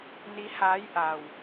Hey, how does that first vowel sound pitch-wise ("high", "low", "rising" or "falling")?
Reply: rising